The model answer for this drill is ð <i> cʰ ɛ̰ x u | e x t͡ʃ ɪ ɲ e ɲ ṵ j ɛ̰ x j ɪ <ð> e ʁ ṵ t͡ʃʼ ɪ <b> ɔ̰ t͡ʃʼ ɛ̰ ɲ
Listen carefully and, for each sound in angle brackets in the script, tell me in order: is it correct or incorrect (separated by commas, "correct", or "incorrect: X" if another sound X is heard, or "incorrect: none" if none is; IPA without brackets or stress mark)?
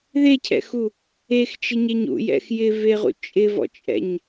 incorrect: e, incorrect: v, incorrect: v